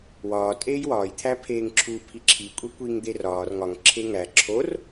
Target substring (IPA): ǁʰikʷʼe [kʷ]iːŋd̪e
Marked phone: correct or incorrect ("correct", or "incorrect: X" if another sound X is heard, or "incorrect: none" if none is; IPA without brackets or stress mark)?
correct